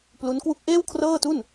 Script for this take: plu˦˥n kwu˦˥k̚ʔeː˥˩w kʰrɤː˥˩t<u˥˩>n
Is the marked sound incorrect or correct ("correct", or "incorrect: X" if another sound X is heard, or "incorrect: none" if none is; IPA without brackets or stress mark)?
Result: correct